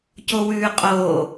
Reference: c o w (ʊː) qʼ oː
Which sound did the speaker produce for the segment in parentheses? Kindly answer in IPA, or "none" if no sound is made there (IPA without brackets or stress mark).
ʉː